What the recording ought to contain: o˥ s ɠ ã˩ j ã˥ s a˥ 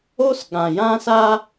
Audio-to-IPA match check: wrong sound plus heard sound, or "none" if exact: none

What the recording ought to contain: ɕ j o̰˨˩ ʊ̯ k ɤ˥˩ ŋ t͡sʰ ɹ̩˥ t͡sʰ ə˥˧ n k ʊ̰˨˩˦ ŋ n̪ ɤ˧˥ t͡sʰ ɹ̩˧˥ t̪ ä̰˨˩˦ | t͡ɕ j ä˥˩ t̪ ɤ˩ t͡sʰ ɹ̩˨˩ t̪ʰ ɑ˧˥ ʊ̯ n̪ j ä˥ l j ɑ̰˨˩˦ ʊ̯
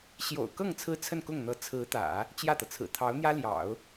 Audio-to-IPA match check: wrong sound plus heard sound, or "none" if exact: ʊ̰˨˩˦ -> ʊ˥˩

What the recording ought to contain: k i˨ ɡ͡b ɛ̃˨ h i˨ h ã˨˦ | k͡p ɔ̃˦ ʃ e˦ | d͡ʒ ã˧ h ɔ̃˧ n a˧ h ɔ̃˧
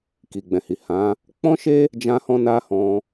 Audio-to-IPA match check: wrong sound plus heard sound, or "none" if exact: none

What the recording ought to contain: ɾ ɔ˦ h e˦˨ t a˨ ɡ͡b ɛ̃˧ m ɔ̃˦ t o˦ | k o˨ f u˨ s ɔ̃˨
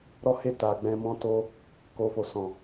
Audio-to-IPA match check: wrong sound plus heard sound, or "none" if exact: u˨ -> o˨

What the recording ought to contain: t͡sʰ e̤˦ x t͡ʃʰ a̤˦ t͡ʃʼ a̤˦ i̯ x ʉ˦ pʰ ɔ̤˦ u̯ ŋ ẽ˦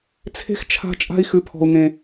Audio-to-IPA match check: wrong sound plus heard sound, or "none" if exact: none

